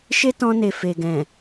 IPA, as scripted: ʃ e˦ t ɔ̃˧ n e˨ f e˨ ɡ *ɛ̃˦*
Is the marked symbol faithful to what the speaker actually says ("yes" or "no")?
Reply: no